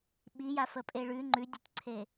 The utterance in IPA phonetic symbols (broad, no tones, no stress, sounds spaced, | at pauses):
ɓ i j a f ə pʼ e ɭ ʉ ŋ͡ǃ ʉ dʲ o tʲ ǀʰ e